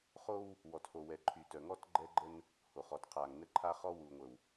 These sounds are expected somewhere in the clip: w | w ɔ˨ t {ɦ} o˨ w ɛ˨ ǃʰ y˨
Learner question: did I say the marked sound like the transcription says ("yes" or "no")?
no